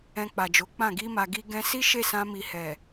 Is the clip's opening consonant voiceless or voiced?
voiceless